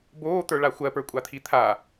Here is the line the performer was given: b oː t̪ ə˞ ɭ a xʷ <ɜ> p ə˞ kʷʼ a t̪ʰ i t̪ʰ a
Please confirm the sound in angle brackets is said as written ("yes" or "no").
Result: yes